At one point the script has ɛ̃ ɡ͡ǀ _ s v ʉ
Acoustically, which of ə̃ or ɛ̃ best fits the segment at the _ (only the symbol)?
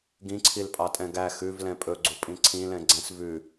ɛ̃